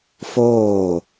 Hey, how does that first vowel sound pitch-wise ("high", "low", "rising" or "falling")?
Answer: falling